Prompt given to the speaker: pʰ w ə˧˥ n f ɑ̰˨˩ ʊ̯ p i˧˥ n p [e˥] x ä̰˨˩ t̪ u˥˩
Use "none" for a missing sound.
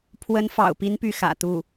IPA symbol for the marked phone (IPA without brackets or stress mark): y˥